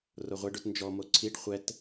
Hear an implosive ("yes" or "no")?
no